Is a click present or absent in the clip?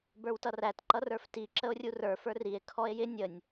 present